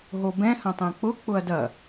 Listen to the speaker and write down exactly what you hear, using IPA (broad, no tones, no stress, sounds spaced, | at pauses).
ɦ o b ɛ̃ h ɐ̃ tˤ ɛ̃ k͡p ʊ k͡p ʊ ɐ̯ d ɐ